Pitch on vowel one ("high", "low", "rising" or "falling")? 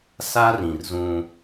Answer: high